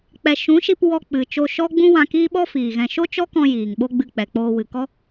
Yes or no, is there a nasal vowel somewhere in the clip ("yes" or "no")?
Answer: yes